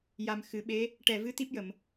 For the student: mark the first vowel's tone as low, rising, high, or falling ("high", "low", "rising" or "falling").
low